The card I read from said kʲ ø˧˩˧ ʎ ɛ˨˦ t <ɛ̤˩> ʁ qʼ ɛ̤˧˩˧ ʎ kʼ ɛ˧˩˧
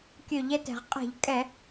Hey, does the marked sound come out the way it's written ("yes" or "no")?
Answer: yes